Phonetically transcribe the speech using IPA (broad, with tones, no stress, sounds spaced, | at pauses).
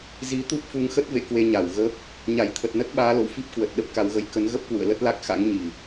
z i˨˦ t̪ u˦˥ p̚ f u˨˦ ŋ x ə˦˥ t̚ v ḛ˧˨ k w e˧ ɲ a˧˩ w ɣ ə˦˥ p̚ | ɲ a˧˩ j t̪ʰ ə˨˩ t̚ n ə˦˥ t̚ ɓ aː˨˦ l o̰˧˨ w f i˦˥ p̚ k w ə˨˩ t̚ ɗ ə˦˥ p̚ k a˨˦ w ɣ ə˧ j k ə˨˦ n ɣ ə˦˥ p̚ k w ṵ˧˨ ə̯ l ə˦˥ t̚ l a˦˥ k̚ x a̰˧˥ ŋ ɲ i˨˩